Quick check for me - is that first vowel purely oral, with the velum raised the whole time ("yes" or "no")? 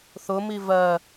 yes